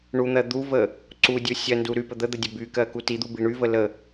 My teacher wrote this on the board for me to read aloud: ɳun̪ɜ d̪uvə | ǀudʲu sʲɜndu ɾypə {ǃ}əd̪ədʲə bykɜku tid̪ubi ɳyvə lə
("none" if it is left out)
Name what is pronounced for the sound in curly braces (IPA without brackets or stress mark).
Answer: d̪